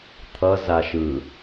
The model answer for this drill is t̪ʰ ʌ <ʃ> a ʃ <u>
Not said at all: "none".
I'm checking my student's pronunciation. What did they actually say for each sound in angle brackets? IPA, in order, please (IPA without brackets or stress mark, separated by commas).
z, ɯ